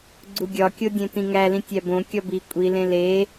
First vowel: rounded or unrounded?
rounded